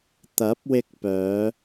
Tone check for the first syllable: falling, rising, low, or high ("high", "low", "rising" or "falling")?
rising